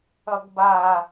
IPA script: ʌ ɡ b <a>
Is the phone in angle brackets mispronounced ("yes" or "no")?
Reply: no